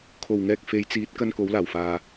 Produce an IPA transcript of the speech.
kʰ o˨˩ w ŋ ɛː˧ k̚ f e˨˧ j t͡s iː˨˥ t̚ k ɐ˥ n k o˨˥ w l aː˨˩ w f aː˨

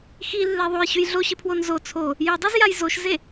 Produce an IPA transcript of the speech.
x i lː e ðˤ o j ɕ ʉ j ɮ o ɕ ɨ pʰ w o n z o t͡sʰ o | j ɵ dˤ ʉ z j a j z o ʃ z e

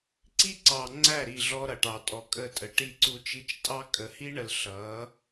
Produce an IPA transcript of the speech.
ǀ i˦ ǀ ɑ˨ ŋ͡ǀ æ˦˨ ɾ i˦˨ ɮ ɔ˦ ɾ ʌ˨ ʈ ɑ˨ tʼ ɔ˨ kʼ ə˦˨ tʼ ə˨ ʈ i˦ ǀ u˦ t͡ʃ i˦ t͡ʃ tʼ ɑ˦ kʼ ə˨ h i˦ ɳ ə˨ l ɬ ʌ˨˦

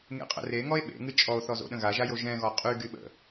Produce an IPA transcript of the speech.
ŋ ḛ qʼ ə̰ r e ŋ ɔ e̯ ɓ ḛ ŋ ɨ t͡ʃʼ ɔ o̯ θ ɔ z o̰ ɗ ə̃ ɣ a ʒ a j o ʒ ɛ̃ ɣ ɔ qʼ y ɡ y ɓ ə̰

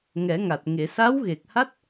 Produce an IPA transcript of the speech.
ŋ ɛ˨˩˦ ŋ a˨˩ t̚ ŋ e˨˩˨ s a˧˥ w ɣ e˨˩ k̚ h a˦˥ t̚

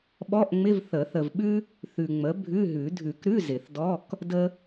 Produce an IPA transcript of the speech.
ɓ ɔ˧˥˧ ʔ ŋ͡m ɪ˧˥˧ v θ ə˨˩˦ θ ə˨ v ɓ ʉ˥ | θ ʉ˨ ŋ͡m ə˩˥ bʱ ʉ˧˥˧ ɦ ʉ˨˩˦ dʱ ʉ˨˩˦ k ɾ ʉ˧˥˧ z ɪ˨˩˦ θ d ɔ˧˥˧ k | d ə˥

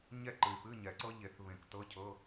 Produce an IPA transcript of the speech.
ɲ ɛ˥˨ ǃ ɨ˨ y̯ f ɨ˧˥˧ ɲ ɛ˨˩˦ ǀ ɤ˦˥ ʎ e˨˩˦ θ β ẽ˨˩˦ k t ɤ˧˥˧ cʰ ɤ˧˥˧

